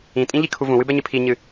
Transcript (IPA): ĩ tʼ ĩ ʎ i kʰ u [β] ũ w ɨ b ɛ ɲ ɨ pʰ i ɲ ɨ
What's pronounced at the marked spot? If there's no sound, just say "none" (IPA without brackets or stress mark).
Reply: v